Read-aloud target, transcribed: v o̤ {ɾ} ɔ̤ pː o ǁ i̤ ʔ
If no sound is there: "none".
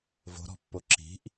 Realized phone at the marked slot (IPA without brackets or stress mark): ɾ